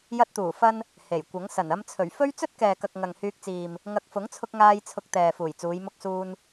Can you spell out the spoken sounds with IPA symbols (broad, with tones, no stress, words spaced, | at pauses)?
jɐ˧t̚t̪uː˨˩fɐ˧n | he˨˩jkʷɐ˨˥ŋ sɐ˨˩nɐ˧mt͡sʰɵ˨˩ɥfɵ˥ɥ t͡sɵ˥t̚kɛː˨kɐ˨k̚ ŋɐ˨ŋhyː˧k̚t͡siː˨m | ŋɐ˨k̚fʊ˨˥ŋt͡sʰʊ˧k̚ŋaː˧j t͡sʰʊ˧k̚t̪ɛː˨ fuː˨˩jt͡suː˨˧j mʊ˧k̚suː˧n